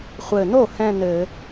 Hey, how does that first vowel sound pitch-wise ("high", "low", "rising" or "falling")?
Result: low